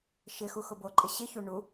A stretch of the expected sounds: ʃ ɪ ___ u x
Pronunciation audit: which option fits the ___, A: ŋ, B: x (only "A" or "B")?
B